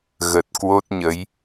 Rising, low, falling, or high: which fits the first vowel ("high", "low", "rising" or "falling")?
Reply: low